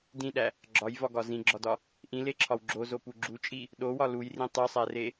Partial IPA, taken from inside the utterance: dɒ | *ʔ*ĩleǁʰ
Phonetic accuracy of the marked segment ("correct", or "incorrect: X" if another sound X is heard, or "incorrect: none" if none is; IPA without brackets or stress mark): correct